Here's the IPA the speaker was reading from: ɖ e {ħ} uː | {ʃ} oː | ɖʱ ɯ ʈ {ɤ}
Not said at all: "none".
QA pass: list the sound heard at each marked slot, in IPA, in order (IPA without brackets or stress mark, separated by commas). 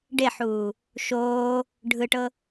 ħ, ʃ, ɤ